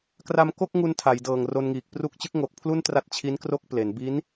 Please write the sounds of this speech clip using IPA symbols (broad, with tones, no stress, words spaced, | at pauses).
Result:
kra˧mko˥˩k̚ŋu˧n tʰa˩˦jdɤː˨˩ŋro˧nŋiː˨˩k̚ pru˦˥k̚t͡ɕɯ˦˥k̚ ŋo˨˩k̚pʰlu˥˩n tra˦˥t̚t͡ɕʰi˦˥n kro˥˩k̚ple˩˦n bi˦˥n